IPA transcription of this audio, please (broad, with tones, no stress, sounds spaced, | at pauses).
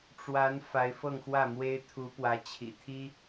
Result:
ʈ͡ʂ w a˧˥ n f a˧˥ ɪ̯ f ɤ˥˧ ŋ x w ä˥˩ m w e˥ ɪ̯ t̪ʰ u˧˥ p w ä˧˥ t͡ɕʰ ḭ˨˩ t̪ʰ i˥